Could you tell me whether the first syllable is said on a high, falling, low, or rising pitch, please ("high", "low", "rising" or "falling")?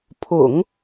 low